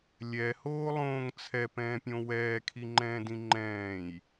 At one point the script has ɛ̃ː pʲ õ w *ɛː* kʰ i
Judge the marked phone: correct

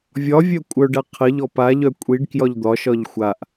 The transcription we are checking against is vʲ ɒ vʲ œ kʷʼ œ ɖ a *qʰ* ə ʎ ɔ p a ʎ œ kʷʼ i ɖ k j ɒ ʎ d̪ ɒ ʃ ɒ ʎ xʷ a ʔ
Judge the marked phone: correct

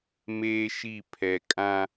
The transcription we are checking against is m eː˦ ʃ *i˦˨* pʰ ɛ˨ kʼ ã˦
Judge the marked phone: correct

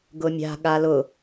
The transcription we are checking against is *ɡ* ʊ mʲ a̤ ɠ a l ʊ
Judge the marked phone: correct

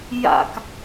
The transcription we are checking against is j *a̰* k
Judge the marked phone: correct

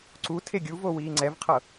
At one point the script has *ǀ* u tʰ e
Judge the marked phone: correct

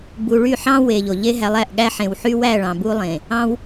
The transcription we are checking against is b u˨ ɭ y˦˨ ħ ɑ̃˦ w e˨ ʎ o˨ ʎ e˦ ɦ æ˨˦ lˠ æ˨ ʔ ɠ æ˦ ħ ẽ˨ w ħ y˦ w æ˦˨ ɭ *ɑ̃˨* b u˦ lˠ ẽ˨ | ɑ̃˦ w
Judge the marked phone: correct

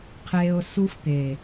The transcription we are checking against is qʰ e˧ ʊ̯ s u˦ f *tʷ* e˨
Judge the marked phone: incorrect: t̪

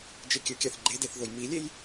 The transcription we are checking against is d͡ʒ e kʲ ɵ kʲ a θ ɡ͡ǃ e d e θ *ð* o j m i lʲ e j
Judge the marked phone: correct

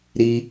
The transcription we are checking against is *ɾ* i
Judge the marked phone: correct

